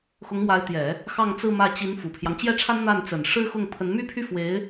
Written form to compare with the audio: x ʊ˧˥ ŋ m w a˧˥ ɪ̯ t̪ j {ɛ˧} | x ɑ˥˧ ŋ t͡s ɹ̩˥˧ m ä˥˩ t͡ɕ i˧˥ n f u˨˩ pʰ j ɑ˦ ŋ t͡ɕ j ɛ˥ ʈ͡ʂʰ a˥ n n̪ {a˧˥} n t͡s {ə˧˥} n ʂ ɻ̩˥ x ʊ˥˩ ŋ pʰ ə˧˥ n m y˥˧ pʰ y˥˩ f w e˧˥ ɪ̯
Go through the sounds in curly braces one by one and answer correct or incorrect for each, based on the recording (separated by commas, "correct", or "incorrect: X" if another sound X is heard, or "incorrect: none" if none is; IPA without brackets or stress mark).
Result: incorrect: ɛ˨˩˦, incorrect: a˥˩, incorrect: ə˨˩